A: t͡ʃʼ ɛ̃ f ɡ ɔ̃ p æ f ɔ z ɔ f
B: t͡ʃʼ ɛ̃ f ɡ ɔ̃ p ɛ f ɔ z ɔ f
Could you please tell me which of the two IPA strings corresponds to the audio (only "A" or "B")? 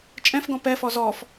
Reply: B